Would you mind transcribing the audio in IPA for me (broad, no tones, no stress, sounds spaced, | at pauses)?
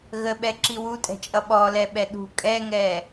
ɣ ə ɓ ɛ ǁ i w u tʼ ɛ̤ t͡ʃʼ ʌ ɓ ɔ l ɛ ɓ ɛ ɗ ṳ kʼ ɛ ŋ ɛ